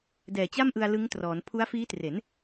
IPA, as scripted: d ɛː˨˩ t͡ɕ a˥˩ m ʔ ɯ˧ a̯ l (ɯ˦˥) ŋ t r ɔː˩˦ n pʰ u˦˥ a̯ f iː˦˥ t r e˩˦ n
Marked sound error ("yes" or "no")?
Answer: no